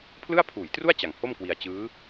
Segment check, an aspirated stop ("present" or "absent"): present